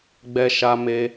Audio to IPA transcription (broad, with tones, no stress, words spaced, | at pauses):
ɡ͡bɛ˦ʃa˦me˦